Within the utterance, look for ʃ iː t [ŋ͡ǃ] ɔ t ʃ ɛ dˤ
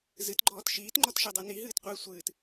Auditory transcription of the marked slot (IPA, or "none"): ŋ͡ǃ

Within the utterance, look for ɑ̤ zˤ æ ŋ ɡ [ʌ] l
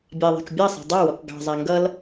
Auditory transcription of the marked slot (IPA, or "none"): ʌ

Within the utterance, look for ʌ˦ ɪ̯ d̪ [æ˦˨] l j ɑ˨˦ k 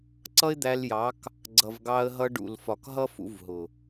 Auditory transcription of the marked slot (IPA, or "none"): æ˧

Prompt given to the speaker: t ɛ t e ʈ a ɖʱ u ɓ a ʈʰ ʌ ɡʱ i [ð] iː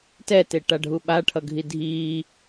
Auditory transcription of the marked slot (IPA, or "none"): dʱ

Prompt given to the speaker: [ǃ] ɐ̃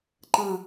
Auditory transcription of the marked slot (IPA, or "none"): ǃ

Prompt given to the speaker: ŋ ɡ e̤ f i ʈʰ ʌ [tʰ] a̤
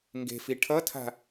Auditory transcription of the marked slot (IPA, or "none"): tʰ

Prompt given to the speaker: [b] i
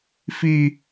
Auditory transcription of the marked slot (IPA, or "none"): f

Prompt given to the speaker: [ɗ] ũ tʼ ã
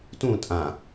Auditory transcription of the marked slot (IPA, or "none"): t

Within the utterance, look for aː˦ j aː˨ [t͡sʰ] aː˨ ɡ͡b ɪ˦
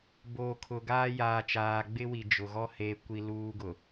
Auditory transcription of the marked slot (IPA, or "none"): t͡ʃ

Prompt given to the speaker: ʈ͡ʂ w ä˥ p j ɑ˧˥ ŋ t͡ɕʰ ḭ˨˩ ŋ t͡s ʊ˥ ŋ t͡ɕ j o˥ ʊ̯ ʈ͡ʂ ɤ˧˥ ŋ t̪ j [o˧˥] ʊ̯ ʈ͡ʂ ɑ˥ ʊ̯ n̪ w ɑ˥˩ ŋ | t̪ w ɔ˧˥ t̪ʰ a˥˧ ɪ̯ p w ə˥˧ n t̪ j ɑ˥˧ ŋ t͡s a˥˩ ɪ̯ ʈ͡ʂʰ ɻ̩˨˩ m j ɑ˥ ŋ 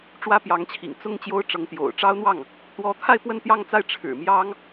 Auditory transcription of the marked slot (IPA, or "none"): o̰˨˩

